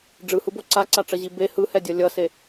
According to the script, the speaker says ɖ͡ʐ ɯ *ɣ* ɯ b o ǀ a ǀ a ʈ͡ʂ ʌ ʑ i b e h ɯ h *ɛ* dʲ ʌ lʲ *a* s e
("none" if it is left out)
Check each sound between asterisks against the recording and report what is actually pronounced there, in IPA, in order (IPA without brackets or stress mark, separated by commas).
h, ɛ, ʌ